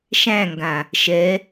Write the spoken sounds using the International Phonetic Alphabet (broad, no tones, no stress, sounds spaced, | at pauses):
ʃ æ̃ ŋ ɡ ã | ʃ ɛ